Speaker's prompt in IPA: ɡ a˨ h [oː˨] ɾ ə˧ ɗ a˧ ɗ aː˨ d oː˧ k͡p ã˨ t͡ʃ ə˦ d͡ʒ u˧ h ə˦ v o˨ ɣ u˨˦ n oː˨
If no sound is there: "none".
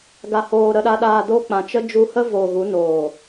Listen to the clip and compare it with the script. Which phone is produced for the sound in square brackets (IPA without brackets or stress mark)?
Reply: oː˨